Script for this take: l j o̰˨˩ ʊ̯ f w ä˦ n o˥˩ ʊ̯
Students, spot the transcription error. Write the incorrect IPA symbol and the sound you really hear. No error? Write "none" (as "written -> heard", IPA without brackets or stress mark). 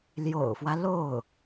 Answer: n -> l